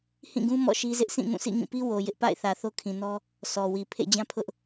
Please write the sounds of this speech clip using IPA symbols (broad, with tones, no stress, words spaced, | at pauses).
hĩ˦˨ɡũ˦ mɔ̰˦˨ʃi˦zɪ˦ʔ sʰĩ˦˨ŋũ˦˨sʰḭ˦˨ ŋĩ˦˨pi˦ wo˨ jɪ˦ʔpa̰˦˨ɪ̯θä˨ θo˦kʰĩ˨nɔ˦ | sɔ˨wi˨ pʰḛ˦˨d͡ʑã˦pʰʊ˦ʔ